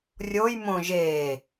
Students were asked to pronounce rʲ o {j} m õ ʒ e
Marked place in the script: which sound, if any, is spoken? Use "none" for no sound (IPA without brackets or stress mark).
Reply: j